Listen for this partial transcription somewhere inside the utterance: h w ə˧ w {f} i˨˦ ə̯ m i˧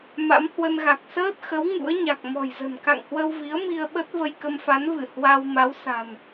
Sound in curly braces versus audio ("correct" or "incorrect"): incorrect